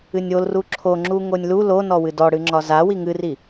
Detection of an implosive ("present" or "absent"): absent